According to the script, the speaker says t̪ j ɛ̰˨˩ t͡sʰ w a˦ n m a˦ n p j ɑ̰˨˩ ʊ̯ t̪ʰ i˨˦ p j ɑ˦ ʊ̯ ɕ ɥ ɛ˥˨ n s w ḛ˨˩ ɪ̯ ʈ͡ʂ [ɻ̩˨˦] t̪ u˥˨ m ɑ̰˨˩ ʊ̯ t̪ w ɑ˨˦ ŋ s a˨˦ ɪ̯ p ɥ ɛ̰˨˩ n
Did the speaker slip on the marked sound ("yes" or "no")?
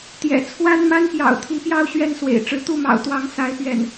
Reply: no